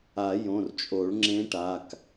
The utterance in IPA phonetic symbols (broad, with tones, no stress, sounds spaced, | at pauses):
a˨˩˦ j õ˩˧˩ r t͡ʃʼ o˨˩˦ ɭ ŋ͡ǁ ẽ˧˥ ʈ a˩˧˩ k